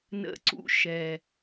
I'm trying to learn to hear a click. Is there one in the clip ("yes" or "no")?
yes